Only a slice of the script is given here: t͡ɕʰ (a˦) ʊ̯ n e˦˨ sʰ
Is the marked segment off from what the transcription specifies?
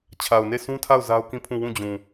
yes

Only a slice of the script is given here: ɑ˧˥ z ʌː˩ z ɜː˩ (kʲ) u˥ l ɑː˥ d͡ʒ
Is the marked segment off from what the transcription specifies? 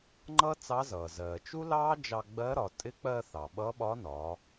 yes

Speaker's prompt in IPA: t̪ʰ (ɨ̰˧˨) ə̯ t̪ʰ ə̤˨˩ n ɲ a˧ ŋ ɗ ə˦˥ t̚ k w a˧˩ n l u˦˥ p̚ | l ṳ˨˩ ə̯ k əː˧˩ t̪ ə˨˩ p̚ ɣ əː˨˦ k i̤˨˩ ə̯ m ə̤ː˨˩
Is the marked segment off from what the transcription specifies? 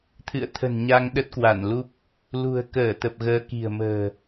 no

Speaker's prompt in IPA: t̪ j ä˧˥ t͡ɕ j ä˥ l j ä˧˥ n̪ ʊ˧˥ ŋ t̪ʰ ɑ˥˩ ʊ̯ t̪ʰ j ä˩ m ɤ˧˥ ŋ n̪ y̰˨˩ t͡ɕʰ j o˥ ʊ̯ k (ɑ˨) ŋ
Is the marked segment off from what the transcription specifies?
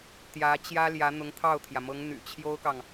no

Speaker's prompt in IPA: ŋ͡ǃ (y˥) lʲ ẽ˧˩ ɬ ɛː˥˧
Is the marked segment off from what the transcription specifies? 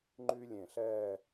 no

